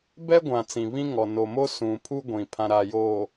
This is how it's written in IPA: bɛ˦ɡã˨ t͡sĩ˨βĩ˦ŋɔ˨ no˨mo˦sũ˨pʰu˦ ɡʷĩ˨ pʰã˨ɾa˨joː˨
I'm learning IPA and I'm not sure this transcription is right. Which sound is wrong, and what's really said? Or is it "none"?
ɡ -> ɡʷ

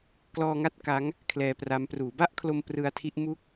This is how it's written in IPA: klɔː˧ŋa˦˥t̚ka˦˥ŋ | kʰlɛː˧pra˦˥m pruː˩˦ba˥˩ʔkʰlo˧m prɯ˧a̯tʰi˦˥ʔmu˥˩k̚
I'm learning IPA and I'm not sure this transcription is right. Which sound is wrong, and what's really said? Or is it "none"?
none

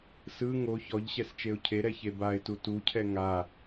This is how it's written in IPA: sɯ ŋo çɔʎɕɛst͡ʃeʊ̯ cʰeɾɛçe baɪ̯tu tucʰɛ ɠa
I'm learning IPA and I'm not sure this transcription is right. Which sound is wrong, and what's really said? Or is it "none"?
ɠ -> ŋ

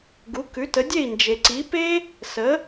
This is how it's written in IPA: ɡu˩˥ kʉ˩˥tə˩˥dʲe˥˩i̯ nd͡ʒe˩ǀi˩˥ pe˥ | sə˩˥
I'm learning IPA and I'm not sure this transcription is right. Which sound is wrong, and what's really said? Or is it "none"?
none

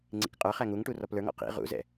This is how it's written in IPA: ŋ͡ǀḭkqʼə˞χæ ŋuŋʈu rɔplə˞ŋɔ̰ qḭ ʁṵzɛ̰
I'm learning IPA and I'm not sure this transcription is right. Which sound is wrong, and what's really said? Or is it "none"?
none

